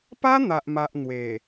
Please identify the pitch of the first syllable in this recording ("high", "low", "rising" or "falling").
high